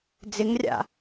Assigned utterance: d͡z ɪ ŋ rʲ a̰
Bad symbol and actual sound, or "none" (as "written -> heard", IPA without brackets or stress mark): none